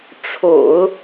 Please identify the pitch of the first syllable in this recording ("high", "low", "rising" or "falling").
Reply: low